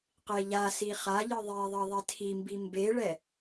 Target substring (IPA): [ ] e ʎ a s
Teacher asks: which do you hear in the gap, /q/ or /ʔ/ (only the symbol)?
q